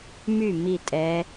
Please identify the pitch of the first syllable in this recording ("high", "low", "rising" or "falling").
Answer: falling